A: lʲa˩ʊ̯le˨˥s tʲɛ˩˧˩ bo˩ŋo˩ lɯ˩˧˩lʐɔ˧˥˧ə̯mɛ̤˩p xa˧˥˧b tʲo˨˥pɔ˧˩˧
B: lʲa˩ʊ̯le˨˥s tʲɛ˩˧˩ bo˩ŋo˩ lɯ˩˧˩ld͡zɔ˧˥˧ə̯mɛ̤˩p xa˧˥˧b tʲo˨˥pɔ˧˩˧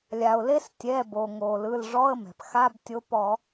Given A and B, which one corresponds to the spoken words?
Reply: A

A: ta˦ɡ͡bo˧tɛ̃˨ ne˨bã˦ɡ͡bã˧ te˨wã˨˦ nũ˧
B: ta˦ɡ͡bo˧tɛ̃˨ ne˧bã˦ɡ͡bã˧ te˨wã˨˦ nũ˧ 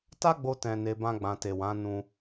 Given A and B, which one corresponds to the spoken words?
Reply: B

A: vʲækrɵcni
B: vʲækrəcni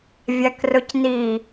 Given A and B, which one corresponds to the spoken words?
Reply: A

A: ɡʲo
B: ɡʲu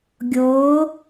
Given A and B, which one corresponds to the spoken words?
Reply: A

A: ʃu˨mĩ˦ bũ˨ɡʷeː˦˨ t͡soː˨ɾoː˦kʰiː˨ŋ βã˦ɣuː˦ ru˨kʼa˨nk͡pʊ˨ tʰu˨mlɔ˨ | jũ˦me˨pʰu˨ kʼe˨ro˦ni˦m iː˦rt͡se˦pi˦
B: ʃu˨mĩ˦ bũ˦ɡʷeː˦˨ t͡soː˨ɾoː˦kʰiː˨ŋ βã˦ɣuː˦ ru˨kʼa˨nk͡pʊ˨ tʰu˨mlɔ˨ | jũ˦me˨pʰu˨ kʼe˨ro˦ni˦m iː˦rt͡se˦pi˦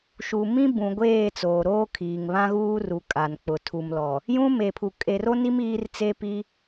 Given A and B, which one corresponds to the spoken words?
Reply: A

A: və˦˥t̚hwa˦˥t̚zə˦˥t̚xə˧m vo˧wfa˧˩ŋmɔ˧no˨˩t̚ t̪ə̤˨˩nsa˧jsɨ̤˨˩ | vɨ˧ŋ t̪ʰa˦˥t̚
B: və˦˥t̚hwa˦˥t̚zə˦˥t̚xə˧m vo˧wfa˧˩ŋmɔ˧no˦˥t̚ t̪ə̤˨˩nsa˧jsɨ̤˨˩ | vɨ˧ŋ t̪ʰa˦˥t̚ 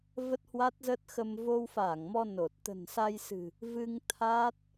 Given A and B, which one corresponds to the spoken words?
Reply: A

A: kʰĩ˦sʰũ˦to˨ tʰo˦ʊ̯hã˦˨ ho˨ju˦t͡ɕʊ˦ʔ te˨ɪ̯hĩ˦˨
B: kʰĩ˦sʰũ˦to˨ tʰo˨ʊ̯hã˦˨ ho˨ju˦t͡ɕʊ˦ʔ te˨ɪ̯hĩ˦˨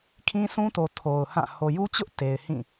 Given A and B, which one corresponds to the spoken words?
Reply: B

